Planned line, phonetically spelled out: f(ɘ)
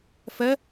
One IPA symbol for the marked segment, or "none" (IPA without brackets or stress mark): ɛ